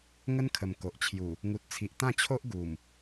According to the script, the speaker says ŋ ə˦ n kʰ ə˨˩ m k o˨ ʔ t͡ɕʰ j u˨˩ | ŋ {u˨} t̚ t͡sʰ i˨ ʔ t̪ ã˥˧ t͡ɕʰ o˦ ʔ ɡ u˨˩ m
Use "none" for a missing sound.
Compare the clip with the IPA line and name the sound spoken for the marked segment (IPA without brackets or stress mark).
u˨